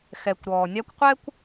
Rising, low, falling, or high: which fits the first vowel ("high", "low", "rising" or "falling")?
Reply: low